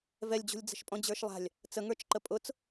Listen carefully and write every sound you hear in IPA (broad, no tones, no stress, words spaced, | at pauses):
vɛlʲd͡ʑṳlʲ d͡zə̤ʃpʼɔ̃d͡ʑə˞ʃlˠa̤lʲ | t͡səŋə˞t͡ʃǃə pʼʊt͡s